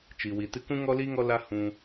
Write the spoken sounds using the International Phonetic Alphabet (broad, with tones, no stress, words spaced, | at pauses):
t͡ʃi˨wi˨tɨ˦ kũ˦ŋɔ˦li˦ ŋɔ˦la˦ hũ˧